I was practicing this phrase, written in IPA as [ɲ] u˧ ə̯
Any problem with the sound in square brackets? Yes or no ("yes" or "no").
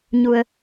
no